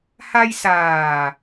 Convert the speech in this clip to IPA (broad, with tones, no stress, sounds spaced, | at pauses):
h a˧ j s aː˨˩